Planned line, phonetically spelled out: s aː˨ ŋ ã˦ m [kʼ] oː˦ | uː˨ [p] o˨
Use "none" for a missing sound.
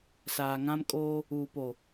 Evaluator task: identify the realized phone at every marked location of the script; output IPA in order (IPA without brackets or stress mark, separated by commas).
kʼ, p